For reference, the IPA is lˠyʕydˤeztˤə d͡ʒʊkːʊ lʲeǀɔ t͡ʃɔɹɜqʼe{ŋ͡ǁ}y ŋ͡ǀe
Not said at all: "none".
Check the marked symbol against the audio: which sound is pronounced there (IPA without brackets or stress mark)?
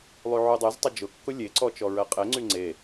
ŋ͡ǀ